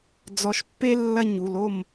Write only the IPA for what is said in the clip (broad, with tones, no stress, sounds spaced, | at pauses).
d͡z ɔ˨ ʃ pː e˦ lː ɐ˦˨ ɲ u˨ l o˦˨ m